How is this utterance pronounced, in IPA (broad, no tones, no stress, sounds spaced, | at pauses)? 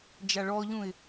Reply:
d͡ʒ a ɭ ɔ ʎ ũ ɪ̯